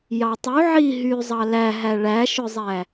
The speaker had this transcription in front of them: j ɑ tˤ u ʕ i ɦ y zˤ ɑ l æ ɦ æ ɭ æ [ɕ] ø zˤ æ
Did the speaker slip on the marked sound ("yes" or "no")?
yes